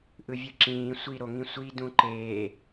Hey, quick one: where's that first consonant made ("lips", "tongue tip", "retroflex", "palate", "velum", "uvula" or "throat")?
throat